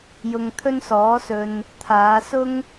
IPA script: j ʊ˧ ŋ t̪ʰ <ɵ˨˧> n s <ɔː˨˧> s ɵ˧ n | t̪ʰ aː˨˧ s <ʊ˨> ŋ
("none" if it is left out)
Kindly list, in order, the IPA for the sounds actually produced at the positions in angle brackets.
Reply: ɵ˥, ɔː˨˥, ʊ˥

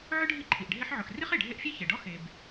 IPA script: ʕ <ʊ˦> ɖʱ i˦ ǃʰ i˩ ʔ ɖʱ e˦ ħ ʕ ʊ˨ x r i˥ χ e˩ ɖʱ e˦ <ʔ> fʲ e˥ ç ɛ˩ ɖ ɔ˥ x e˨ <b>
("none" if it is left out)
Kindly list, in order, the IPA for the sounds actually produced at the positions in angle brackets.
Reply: ʊ˥, ʔ, b

